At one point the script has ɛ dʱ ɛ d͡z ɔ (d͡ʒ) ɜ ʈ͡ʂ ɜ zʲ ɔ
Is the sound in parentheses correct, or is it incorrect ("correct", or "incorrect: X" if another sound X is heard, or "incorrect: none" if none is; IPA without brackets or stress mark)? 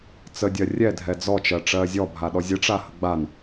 incorrect: t͡ʃ